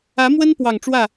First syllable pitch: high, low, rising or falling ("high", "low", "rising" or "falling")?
rising